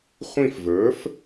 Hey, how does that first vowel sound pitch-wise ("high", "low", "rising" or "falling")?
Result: falling